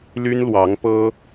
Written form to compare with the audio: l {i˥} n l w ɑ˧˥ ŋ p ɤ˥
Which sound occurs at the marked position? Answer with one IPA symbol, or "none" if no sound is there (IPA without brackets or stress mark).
y˥